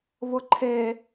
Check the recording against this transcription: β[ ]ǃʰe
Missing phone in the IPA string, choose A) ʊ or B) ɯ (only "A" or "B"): A